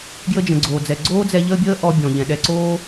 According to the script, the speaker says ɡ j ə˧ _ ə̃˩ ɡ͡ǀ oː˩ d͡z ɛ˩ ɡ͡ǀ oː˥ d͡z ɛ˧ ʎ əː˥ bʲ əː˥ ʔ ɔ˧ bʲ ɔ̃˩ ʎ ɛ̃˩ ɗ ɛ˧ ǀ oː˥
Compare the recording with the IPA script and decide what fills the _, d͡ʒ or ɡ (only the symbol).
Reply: d͡ʒ